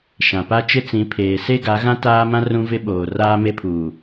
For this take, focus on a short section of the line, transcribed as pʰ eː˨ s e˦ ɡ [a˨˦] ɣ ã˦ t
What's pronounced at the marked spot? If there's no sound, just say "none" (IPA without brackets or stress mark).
a˨˦